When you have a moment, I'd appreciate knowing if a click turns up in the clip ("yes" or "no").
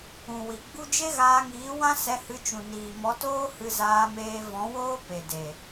no